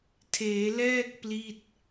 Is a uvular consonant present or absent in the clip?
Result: absent